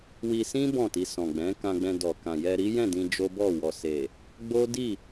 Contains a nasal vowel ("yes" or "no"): yes